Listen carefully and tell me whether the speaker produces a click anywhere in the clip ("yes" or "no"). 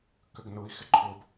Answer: yes